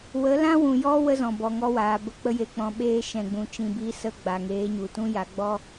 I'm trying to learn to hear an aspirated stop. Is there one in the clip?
no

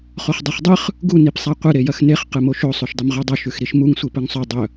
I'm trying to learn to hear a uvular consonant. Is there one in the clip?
yes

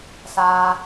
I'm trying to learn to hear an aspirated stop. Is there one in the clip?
no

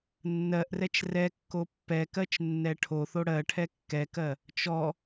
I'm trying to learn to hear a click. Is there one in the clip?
no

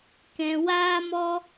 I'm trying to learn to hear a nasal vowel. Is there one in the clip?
yes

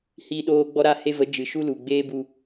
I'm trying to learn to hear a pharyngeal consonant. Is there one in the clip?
no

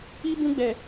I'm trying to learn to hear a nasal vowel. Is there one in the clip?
yes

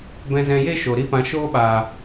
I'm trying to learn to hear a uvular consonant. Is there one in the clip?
no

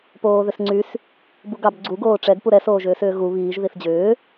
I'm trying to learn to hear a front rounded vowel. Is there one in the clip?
yes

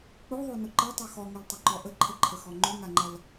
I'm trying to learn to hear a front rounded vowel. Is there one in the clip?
yes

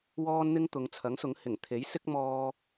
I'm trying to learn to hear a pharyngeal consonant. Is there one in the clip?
no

